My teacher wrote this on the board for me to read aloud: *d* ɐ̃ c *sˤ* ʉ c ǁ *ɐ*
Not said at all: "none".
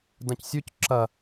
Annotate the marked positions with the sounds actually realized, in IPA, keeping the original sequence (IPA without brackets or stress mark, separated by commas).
d, sʲ, ɐ